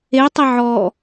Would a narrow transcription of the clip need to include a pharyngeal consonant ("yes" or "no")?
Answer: yes